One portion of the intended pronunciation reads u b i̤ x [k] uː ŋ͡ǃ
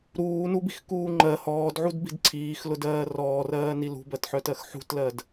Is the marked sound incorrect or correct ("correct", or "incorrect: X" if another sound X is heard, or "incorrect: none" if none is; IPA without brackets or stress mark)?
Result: correct